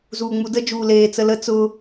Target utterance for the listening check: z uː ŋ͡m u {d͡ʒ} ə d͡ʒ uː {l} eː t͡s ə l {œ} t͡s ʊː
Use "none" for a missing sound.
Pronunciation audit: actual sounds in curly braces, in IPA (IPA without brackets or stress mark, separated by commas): d, l, ə